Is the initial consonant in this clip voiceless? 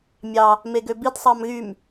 no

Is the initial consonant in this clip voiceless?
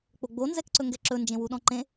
yes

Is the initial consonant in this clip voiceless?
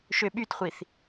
yes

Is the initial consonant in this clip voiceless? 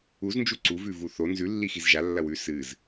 no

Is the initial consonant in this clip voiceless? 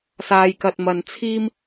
yes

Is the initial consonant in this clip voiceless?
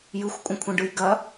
no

